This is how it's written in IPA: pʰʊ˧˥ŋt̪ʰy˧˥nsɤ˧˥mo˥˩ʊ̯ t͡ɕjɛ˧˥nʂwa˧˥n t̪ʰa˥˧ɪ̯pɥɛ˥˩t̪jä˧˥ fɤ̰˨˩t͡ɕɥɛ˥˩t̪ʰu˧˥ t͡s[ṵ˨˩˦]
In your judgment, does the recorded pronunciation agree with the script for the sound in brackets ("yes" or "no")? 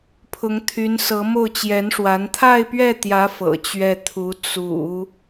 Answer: yes